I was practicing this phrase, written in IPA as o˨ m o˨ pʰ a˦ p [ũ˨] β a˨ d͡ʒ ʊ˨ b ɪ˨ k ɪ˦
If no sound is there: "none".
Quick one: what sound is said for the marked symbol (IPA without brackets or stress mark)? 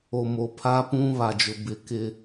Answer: ũ˦